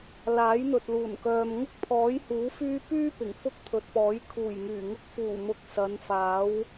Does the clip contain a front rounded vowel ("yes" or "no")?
yes